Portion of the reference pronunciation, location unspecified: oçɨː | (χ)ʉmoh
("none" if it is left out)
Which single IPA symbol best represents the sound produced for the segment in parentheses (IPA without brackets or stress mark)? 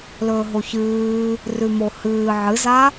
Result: r